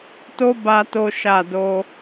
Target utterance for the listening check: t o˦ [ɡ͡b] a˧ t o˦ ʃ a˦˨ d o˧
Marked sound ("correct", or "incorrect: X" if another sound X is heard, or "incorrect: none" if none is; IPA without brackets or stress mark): incorrect: b